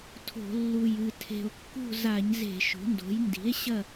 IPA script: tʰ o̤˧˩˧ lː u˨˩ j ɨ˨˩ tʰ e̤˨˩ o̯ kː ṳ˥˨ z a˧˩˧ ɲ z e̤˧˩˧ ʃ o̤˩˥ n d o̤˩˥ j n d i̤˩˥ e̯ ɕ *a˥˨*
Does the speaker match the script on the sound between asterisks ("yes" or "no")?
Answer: no